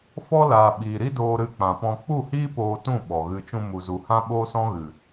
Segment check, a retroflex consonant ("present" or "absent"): absent